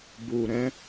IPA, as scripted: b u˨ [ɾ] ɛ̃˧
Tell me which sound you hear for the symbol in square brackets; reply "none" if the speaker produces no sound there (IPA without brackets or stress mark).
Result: ɾ